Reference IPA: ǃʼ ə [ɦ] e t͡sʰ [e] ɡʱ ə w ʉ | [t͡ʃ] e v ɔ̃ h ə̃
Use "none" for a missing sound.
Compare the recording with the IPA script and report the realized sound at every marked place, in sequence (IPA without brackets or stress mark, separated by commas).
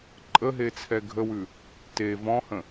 ɦ, ɛ, t